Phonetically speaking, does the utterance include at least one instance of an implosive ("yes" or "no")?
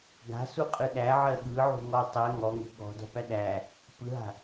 yes